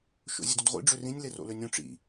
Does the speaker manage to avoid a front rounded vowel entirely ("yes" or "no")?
no